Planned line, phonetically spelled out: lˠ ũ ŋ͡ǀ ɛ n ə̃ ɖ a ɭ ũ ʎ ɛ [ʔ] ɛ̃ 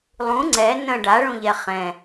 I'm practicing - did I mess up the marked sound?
yes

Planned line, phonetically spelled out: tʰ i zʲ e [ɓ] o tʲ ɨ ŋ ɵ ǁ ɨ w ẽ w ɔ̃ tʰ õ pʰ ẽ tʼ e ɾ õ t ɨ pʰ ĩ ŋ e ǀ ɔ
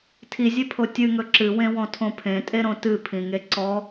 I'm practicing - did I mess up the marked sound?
yes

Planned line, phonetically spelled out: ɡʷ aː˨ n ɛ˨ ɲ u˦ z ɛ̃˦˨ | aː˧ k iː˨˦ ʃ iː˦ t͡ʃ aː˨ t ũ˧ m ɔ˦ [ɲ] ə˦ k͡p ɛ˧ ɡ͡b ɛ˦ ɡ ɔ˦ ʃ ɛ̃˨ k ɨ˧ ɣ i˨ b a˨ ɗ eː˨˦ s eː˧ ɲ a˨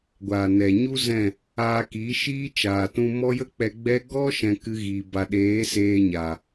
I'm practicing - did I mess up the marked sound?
yes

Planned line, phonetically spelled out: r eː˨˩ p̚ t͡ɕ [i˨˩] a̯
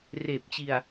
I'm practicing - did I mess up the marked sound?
no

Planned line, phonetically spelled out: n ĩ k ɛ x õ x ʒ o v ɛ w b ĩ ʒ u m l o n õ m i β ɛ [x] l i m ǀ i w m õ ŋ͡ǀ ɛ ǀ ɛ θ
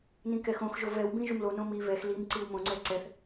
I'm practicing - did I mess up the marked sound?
no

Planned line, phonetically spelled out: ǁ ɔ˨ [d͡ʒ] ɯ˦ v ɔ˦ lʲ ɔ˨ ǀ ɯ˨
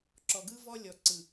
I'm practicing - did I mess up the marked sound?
yes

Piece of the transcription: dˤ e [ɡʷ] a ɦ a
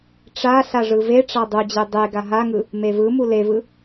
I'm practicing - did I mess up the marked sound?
yes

